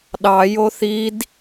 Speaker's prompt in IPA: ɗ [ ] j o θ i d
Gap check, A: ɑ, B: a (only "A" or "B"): A